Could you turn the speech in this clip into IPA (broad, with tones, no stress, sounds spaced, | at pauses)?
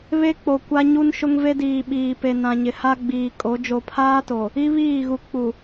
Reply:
β e˦ k͡p o˨ kʷ a˦ ɲ u˦ n ʃ ʊ˦ ŋ v e˦ d iː˨ ɓ iː˨ p e˨ n ã˨ ɲ ɪ˨ h a˦ ɡ͡b iː˨ kʼ o˨˦ d͡ʒ o˨ pʰ aː˦ t o˨ | i˦ β iː˦˨ ɣ u˨ k͡p u˨